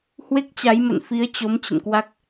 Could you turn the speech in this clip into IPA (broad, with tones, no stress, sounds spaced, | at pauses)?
h w e˦˥ k̚ t͡ɕ a˨˦ j m ə̰˧˨ n f i˨˦ ə̯ t͡ɕ o˨˦ m t͡ɕ ə̰˧˨ n k w a˦˥ k̚